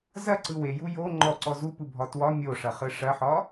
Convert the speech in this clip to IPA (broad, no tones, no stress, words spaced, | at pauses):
zɐǀɯ weju jo ŋ͡ǃɔǀɔ zupɯbʱɒ twɒ mʲoʂɐχɯ ʂɐħɒ